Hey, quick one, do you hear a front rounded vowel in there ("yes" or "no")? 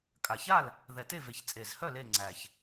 yes